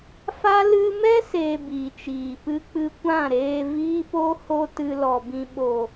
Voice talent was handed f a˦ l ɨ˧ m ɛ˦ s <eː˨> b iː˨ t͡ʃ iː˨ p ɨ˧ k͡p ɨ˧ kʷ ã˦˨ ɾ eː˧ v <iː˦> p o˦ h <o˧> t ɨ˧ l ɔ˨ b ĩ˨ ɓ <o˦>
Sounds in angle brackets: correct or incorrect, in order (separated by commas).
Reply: incorrect, correct, correct, incorrect